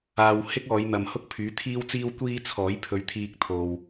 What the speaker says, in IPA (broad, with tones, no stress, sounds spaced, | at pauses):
aː˨ w h ɪ˥ k̚ ɔː˨˧ j n̪ ɐ˨ m h ʊ˥ k̚ pʰ yː˨˥ t̪ʰ iː˥ w t͡s iː˥ w kʷ iː˥ t͡sʰ ɔː˨˥ j pʰ ɵ˧ ɥ t̪ʰ iː˧ k̚ t̪ʰ o˨ w